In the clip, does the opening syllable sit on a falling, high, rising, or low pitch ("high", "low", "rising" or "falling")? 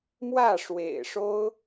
falling